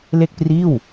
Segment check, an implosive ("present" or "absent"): absent